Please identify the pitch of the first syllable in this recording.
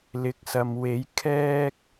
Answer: rising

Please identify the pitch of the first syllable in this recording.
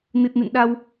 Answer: low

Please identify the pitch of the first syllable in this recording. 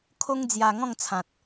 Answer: high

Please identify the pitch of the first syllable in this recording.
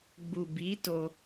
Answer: low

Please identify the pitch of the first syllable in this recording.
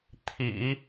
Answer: low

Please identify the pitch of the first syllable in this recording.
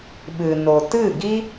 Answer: low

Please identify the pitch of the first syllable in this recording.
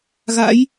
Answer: rising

